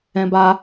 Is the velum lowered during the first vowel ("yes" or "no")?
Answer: yes